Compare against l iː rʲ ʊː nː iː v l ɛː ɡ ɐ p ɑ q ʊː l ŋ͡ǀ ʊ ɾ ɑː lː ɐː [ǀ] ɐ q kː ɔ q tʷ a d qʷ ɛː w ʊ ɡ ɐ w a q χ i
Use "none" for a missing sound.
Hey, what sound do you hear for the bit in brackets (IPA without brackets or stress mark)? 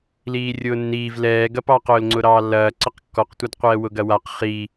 ǀ